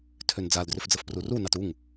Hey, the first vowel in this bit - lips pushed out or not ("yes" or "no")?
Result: yes